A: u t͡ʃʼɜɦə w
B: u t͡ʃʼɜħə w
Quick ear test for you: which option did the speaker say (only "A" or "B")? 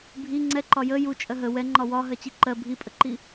A